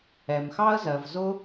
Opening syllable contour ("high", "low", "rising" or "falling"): low